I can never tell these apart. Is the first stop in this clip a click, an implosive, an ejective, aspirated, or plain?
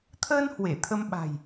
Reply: aspirated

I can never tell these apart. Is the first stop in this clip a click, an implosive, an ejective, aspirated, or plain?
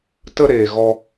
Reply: plain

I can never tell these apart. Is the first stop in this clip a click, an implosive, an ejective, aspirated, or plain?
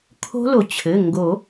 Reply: aspirated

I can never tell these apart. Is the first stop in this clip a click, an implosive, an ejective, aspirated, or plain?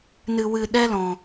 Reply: implosive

